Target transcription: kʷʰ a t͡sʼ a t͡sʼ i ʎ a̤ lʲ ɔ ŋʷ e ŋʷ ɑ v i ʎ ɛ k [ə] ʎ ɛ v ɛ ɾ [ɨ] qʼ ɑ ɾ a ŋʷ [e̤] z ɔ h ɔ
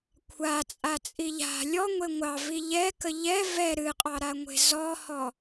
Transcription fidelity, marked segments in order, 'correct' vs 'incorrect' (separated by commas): correct, correct, correct